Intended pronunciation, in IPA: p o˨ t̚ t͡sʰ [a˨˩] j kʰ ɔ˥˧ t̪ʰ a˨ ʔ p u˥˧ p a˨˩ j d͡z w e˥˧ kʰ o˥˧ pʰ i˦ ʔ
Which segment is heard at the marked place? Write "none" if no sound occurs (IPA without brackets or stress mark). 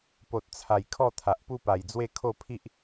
a˨˩